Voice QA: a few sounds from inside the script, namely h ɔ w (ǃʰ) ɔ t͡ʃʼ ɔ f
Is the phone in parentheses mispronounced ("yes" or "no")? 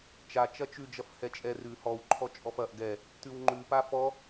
no